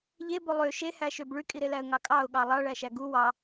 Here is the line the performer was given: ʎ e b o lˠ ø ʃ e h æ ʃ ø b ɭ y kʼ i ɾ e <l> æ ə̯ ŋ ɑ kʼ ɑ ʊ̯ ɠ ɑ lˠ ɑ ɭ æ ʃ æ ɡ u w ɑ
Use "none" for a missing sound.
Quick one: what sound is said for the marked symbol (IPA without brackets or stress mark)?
l